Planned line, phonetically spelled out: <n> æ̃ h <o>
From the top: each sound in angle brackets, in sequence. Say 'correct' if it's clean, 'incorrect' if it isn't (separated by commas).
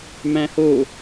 incorrect, correct